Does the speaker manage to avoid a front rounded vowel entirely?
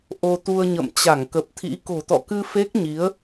yes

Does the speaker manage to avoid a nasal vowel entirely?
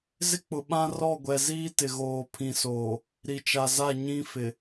no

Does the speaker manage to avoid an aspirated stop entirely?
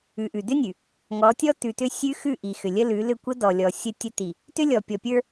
yes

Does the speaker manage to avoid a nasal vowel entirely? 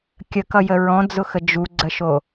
no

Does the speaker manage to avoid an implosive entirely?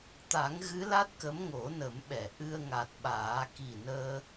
no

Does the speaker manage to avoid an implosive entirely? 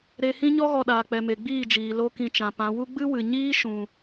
no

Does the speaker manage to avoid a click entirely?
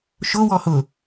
yes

